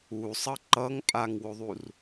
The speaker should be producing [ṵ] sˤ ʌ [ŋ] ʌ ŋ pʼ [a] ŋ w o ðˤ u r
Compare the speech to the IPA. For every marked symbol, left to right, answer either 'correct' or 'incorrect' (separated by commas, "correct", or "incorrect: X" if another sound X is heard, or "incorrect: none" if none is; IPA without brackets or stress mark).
incorrect: u, incorrect: ǃ, correct